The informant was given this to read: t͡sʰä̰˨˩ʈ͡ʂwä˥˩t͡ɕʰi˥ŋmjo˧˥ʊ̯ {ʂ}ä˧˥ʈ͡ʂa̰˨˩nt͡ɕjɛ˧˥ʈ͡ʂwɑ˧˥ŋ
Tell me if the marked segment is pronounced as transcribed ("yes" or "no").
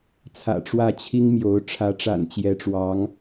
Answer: no